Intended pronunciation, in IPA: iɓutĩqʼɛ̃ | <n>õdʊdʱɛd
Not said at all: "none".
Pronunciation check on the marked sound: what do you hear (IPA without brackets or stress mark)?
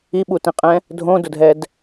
dʱ